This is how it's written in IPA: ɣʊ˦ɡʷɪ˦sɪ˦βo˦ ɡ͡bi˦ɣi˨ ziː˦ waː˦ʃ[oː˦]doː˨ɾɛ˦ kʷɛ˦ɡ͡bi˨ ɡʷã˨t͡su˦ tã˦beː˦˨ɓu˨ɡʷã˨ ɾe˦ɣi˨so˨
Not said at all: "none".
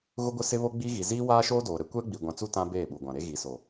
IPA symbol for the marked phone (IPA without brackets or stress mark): oː˦